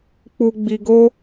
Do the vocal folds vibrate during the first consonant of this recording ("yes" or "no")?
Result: no